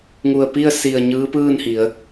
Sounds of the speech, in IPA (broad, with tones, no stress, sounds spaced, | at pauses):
ŋ u˧˩ ə̯ p i˥˨ ə̯ s i˧˩ ə̯ ɲ ɯː˧˥ p ɯː˥˨ n h i˩˧ ə̯